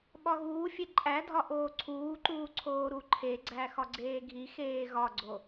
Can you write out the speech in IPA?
ɓ ɒ ɣ uː fʲ e ǃʼ æ dʱ ɒ ʔ oː ǀʰ uː ǃ uː ǀʰ oː ɾ u ǃʰ e ɡ͡ǀ æ x ɒ ɡ͡ǀ eː ɡʱ i x eː ɣ ɒ ɡ͡ǀ o

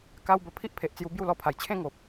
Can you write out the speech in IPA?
k a˦ w b ə˧ pʰ i˦ ʔ pʰ e˨ ʔ t͡s j u˧ b j u˥˧ l ɔ˧ pʰ a˨˩ j t͡ɕʰ ẽ˥˧ ŋ o˨ p̚

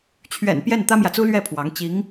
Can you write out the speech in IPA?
t͡ɕʰ ɥ ɛ̰˨˩ n p j ɛ˥˩ n t̪ ä˥ m j ä˨ t͡s u˥ l ɥ ɛ˥˩ pʰ w ɑ˧˥ ŋ t͡ɕ i˧˥ ŋ

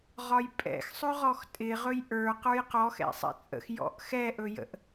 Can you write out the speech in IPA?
ʁ ɒ j pʼ ɛ̰ x sˤ ɵ ʁ ɔ x tʼ ɪ ʁ ɵ j ʔ ə˞ q ə˞ j q ɔ x ɛ̰ sˤ ɛ̰ t͡sʼ ə̰ x j ɔ̰ ʔ x ɛ ʔ ɵ j ə̰ ʔ

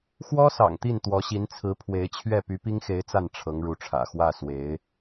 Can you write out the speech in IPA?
x w ɔ˥ s ɑ̰˨˩ ŋ t̪ i˥˩ n t̪ w ɔ˧˥ ɕ i˧˥ n t͡sʰ ɹ̩˧˥ pʰ w e˧˥ ɪ̯ t͡ɕʰ ɥ ɛ˥˩ p y˧˥ p i˥ ŋ x e˧˥ ɪ̯ t͡s a˥˩ n ʈ͡ʂʰ ɤ˧˥ ŋ ɻ u˧˥ ʈ͡ʂʰ ä̰˨˩ x w ä˥˩ s w e˧˥ ɪ̯

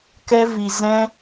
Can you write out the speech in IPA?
k ɛ˦ v i˧ z ɛ̃˦

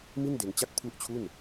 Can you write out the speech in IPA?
m i˥˩ n d e˧ n t͡ɕ a˦˥ k̚ pʰ u˦˥ ʔ t͡ɕʰ u˥˩ n

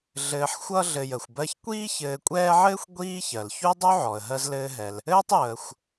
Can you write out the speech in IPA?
ɮ ɘː˨ ħ xʷ ʌ˦ ɮ ɘ˨ j ə˩ xʷ b ɜ˦ ç kʷ iː˥ ç ɘː˨ kʷʼ ɛː˦ ʕ ɘː˥ xʷ ɡʷ iː˥ ç ɜ˩ l ç u˥ dˤ u˥ ʕ ɔ˩ ə̯ ɦ ɜ˦ z l ɘː˦ ɦ ɛ˨ l | ɘː˥ tˤ j əː˨ xʷ

